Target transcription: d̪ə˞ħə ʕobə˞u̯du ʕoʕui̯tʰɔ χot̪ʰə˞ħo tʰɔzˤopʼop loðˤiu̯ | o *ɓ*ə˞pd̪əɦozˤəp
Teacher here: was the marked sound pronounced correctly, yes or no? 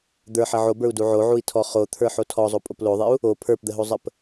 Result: no